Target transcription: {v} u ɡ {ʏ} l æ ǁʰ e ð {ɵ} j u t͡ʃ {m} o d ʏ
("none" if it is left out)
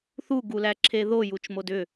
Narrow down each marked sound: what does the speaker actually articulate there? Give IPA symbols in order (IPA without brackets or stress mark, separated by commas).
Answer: θ, u, o, m